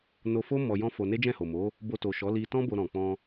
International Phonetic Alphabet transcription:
no˧fo˦ mɔ˧jɔ̃˦fo˧ ne˦d͡ʒɛ̃˦˨ho˨mo˨˦ | bo˧to˨ʃɔ˨˦ li˧tɔ̃˦ bo˧ɾɔ̃˨k͡pɔ̃˧

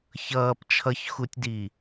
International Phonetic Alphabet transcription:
çʌːp t͡ʃʰʌçxutʲdi

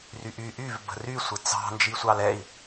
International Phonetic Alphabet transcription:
ryʔy ʔyv bə̤rysʷɘ t͡sɑ̤nd͡ʒisʷɑl ɛi̯

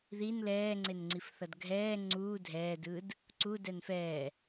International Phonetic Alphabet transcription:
ðin lɛːŋ͡ǀenŋ͡ǀifθʌd ɡʱɛː ŋ͡ǀuː dʱɛːdɯːd | ǀu dɛnfɛː

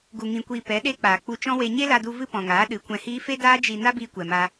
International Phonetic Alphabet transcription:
ɡu˨ŋĩ˨kʷiː˨ pɛ˨˦ɗe˦k͡paː˨ k͡pu˧t͡ʃɔ̃˦we˧ ɲe˦la˧du˧ vɨ˦pɔ̃˨ŋaː˨˦ ɗɨ˨˦kʷɛ̃˧hiː˦ fe˦daː˦ d͡ʒi˧ na˦biː˧kʷɛ˨ma˧

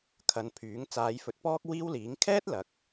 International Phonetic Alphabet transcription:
kʰɐ˨˧npʰyː˨˥ŋ t͡saː˨˧jfɵ˨˥t̚pɔː˥k̚ wiː˥wliː˨˥ŋ kʰɛː˥t̚lɐ˨k̚

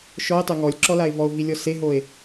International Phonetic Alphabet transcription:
ʃɔe̯tˤø ŋɔlʲǁɔlae̯ vɔo̯vilʲɔ seɦoe̯

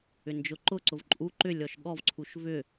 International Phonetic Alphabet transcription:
ʏnd͡ʒʊǃʊǀʊv ǃʼu ǃʏ lʲɔʃɠɔvǀʰuʃ vʏ

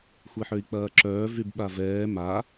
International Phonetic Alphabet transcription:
xʷeħøi̯k͡pɐːǁœː vybɓavɛː ma

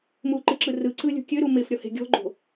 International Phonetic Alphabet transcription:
muǃɨǁɯ rɯǀɯlʲṳ kʲøɾu mɪfɾʲɔhe̤ ɡʲɔ̤ɡ͡ǃo̤

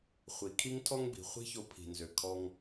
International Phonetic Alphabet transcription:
χʷi˩kʰi˦ŋtʰɔ˦ŋ bi̤˩χʷi̤˦ço˨ pʰi̤˩nzø˩ kʰɔ˨ŋ

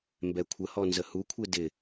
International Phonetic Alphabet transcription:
mbɛkʷʰəhɔ nzəhukʷʰe dɪ

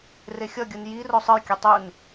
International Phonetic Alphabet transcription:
rexʲʌɡʲɯn ji rosˤɯjkʲɛ tˤun

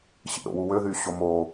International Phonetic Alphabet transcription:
ɕḭɾo̰wu wøðyː ɕomo

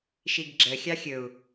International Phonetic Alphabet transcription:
ʃiɡɡ͡ǁə xʲɑxʲɵu̯

